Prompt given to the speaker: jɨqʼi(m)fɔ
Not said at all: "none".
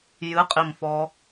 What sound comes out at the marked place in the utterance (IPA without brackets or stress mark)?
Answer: m